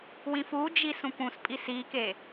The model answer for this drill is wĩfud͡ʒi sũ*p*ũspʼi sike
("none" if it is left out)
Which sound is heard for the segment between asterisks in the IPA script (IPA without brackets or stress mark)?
p